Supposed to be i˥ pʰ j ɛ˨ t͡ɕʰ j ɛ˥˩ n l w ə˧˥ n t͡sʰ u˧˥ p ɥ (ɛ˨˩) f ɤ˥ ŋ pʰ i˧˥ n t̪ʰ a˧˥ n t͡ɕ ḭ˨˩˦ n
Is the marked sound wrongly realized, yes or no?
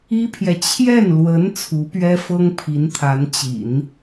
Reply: yes